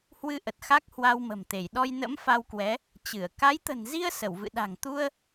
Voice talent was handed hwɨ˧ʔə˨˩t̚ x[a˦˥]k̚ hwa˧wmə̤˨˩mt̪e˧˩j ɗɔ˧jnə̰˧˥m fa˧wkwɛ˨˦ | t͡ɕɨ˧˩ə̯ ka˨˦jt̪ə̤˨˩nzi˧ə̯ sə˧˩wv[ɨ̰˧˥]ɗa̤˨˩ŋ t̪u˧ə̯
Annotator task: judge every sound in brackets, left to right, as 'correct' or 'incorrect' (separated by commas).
correct, incorrect